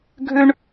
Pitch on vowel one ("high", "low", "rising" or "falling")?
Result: high